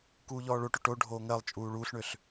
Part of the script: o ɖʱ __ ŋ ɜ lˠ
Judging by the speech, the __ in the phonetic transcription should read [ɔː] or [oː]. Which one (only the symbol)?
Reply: oː